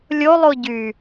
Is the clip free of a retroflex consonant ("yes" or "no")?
yes